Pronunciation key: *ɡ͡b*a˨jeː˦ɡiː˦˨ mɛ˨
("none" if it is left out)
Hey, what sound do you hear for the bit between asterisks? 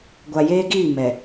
ɡʷ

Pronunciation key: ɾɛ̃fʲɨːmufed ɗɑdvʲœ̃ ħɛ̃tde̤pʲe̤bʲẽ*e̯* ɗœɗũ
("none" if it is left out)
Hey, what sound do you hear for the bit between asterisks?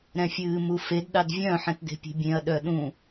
ɐ̯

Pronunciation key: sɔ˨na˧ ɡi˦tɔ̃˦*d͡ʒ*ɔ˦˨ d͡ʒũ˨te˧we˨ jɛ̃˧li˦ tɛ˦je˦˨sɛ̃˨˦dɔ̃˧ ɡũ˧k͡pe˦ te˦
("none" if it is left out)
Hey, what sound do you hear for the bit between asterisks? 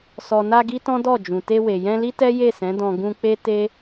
d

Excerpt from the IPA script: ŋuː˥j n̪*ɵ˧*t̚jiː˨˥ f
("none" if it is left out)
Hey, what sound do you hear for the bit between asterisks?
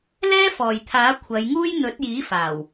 ɵ˨˥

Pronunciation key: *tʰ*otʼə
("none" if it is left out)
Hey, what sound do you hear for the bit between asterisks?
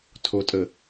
tʰ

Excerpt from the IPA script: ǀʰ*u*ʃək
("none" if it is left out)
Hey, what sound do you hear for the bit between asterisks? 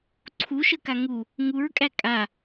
u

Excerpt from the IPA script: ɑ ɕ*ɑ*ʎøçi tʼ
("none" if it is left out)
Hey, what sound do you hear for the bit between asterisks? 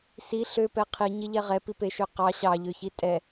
ɑ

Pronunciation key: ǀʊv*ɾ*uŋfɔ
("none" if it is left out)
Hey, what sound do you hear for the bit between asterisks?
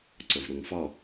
ɾ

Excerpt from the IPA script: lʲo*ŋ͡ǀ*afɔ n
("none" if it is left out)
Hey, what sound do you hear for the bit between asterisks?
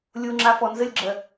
ŋ͡ǁ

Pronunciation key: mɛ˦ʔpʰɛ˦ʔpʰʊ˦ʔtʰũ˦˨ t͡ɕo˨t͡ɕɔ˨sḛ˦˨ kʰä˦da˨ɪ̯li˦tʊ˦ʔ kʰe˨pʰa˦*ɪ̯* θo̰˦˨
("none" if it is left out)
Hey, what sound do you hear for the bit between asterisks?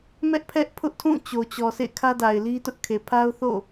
ʊ̯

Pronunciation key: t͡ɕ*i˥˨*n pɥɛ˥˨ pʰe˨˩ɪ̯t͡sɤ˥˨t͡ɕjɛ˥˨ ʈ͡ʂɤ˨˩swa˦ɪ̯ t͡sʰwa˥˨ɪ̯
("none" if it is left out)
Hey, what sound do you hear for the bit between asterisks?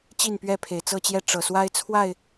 i˥˨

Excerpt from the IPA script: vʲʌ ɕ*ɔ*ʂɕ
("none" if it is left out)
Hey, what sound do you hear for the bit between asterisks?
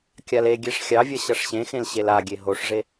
ʌ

